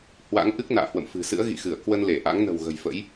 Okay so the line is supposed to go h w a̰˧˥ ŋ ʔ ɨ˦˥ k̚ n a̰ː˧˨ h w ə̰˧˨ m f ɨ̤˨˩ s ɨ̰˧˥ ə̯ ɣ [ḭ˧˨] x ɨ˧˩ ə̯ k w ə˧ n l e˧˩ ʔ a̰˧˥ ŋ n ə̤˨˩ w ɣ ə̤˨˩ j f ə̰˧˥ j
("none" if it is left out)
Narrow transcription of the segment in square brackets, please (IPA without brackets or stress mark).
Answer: ḭ˧˨